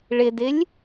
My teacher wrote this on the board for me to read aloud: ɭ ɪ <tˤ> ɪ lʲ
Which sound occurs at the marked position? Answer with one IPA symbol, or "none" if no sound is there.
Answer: d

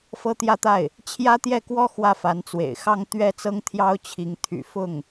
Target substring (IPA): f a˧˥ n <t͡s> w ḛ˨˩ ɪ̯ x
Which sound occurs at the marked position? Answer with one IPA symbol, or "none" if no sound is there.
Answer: t͡s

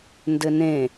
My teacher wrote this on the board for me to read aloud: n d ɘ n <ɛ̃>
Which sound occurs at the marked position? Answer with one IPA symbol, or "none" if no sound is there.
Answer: ẽ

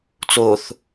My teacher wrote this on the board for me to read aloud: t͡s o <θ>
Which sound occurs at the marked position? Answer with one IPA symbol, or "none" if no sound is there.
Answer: θ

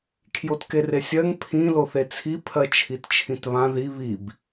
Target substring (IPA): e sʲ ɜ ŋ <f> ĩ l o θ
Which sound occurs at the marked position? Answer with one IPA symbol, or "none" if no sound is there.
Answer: pʰ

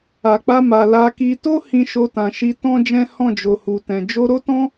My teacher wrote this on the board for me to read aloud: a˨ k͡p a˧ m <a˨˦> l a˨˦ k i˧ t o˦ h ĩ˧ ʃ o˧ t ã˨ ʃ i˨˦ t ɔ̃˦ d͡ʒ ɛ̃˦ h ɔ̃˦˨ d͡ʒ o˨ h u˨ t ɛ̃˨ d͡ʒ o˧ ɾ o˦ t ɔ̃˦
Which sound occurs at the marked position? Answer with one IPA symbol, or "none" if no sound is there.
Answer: a˨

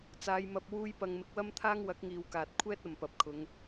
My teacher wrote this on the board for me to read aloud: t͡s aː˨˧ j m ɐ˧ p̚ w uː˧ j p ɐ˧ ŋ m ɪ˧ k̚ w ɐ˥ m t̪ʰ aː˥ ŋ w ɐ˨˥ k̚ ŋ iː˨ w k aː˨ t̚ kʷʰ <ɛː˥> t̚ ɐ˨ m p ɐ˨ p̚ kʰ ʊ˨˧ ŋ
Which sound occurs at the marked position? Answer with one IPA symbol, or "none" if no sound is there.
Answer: ɛː˥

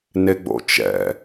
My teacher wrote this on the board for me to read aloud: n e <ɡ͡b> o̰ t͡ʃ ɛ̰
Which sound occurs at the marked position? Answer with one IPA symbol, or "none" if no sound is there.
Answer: ɡ͡b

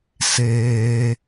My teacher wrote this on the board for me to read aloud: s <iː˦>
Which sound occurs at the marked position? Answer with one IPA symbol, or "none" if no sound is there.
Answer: eː˦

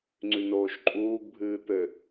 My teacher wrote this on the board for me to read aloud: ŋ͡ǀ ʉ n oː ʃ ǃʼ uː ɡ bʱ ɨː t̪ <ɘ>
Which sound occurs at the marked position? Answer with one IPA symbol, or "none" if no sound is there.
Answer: ɘ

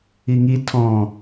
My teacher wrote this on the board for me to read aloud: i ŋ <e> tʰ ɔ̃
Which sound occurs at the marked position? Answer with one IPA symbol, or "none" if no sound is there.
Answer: i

